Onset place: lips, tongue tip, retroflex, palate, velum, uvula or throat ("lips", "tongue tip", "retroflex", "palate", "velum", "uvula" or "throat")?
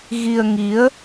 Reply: velum